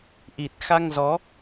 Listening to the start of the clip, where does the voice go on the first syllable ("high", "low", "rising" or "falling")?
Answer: low